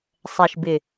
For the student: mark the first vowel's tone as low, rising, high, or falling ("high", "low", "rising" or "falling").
low